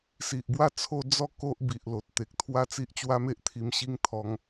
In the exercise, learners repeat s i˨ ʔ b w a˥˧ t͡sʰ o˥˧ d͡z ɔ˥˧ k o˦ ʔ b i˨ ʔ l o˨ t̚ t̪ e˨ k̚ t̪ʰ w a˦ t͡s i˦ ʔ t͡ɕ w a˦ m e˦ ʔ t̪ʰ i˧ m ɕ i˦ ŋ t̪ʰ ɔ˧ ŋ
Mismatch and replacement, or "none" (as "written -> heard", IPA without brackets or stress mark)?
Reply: none